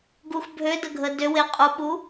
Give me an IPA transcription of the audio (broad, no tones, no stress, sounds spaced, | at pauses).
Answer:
ɡ u x bʱ ø d ə ɡʱ ə d ø w e qʼ u ɓ u